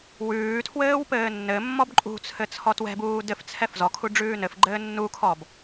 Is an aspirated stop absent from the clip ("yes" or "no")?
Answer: no